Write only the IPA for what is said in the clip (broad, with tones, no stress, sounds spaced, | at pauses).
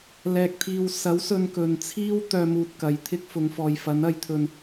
l ɛː˧ k̚ t̪ʰ iː˧ w s ɐ˨˥ w s ɵ˧ n k ɵ˨ n t͡sʰ iː˥ w t̪ œː˧ m uː˨ t̚ k ɐ˨˧ j t̪ʰ ɪ˥ k̚ f ʊ˨˧ ŋ f ɔː˨ j f ɐ˨˥ n ɐ˧ j t̪ʰ ɵ˧ n